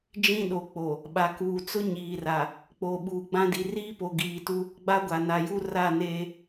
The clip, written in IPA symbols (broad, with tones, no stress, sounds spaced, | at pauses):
d͡ʒ ĩ˦ ɗ o˨ k͡p o˨ | ɓ a˨ k uː˨ t͡s ʊ˦ ɲ iː˨ r a˨ | k͡p o˨ ɓ uː˨ ɡ͡b ã˦ d i˨ r iː˦ p o˨ ɡ iː˨ t u˦ | ɡ͡b a˦ ɡʷ a˨ n a˨ j u˦ r a˦˨ n eː˦